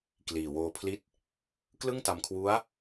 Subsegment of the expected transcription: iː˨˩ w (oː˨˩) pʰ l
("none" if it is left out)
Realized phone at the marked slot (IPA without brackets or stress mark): oː˧